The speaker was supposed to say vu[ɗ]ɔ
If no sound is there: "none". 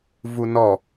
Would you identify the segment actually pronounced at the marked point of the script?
n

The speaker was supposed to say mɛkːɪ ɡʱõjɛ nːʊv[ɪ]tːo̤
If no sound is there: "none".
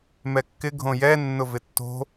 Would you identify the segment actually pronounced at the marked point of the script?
ɪ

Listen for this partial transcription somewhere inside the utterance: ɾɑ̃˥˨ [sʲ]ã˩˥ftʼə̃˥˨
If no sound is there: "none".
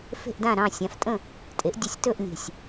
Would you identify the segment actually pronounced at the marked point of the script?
sʲ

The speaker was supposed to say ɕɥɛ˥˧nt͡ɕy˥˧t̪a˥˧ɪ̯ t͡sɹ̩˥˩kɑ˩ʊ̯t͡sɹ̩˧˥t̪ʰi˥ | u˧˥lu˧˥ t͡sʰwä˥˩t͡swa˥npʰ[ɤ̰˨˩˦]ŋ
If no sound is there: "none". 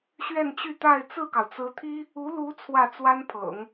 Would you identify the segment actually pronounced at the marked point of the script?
ɤ̰˨˩˦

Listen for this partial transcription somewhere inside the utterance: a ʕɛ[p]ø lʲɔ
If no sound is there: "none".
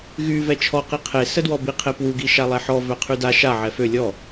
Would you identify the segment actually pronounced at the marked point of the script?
f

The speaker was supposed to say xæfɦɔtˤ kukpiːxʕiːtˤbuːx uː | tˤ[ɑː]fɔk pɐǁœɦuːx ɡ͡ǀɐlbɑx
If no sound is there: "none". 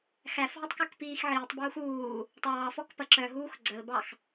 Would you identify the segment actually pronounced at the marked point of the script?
ɑː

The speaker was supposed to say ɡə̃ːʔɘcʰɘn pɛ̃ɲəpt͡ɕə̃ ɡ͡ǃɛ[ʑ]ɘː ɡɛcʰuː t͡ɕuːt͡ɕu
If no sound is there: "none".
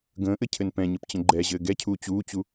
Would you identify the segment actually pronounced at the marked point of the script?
ʑ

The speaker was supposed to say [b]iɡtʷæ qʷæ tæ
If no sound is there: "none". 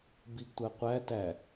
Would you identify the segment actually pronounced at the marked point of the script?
b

